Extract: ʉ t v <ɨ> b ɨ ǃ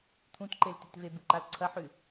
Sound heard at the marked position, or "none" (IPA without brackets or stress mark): e